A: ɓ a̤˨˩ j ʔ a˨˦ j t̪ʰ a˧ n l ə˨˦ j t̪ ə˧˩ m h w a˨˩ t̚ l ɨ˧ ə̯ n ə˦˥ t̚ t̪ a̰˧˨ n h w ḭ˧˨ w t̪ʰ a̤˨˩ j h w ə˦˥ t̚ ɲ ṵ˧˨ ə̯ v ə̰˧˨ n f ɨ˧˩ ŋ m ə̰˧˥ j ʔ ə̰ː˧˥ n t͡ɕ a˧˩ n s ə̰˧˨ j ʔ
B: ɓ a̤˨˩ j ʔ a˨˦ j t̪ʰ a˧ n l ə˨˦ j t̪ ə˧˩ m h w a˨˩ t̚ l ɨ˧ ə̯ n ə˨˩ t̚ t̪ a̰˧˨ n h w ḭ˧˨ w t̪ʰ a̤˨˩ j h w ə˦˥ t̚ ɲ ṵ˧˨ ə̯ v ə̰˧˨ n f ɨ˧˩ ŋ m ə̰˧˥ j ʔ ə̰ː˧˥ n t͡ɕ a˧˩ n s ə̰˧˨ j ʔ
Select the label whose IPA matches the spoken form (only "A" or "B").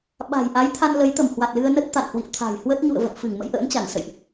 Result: A